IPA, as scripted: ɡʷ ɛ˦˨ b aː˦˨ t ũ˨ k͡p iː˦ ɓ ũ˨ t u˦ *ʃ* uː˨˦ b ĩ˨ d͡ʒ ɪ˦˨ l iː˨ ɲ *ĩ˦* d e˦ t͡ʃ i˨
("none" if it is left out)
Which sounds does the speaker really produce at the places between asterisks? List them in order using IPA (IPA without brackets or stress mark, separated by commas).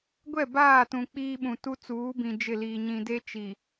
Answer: t͡s, ĩ˨